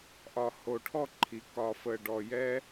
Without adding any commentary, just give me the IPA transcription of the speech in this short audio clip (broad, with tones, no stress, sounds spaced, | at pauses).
ʔ ɒ˨ h o˨ ʈʰ ɔ˦˨ ǃʰ i˨ k ɒ˨ f ə˨ ɖ ɔ˨ j ɛ˦